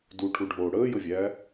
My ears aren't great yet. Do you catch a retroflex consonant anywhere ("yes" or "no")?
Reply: yes